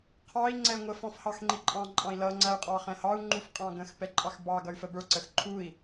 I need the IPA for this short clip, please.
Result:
qʰ ɑ i̯ ŋ͡ǀ ɛ ŋʷ ə f ɔ̃ f h ɑ x ŋ͡ǃ i ǃʼ ɑ̃ ǃʼ ɑ̃ i̯ l ʌ ŋ͡ǀ æ y̯ qʼ ɑ χ ɛ̃ h ɑ u̯ ŋ͡ǃ u f qʼ ɑ̃ ɡ ə̃ x p ɛ ǃʼ ɑ x b ɑ ɡ ʌ y̯ f ə b ə˞ ǀ ə x ǃʰ u i̯

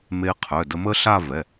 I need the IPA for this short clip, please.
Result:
m e˧ qʰ œ˩˧˩ d ə˧ m ə˦˥ ɬ a˥˧ v ɛ˩˧˩

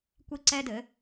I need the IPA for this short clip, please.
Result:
kʷ i˥ ǀ ɛ˥ d ɘ˩˥

